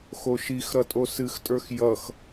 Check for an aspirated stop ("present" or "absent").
absent